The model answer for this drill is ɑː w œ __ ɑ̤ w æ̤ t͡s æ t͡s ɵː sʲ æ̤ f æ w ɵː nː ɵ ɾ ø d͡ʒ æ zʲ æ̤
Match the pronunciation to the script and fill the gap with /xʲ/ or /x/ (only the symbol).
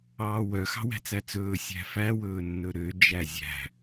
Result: x